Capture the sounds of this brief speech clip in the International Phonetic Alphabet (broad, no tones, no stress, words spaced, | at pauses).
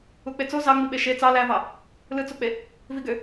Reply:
uk͡pet͡so zɑŋ͡miɓe ʃe t͡sɑ lævɑ | lɯt͡sok͡pe | viɡø